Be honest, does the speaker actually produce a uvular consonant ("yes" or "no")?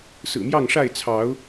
no